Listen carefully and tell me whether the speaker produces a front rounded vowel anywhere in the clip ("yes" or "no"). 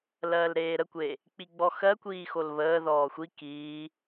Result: no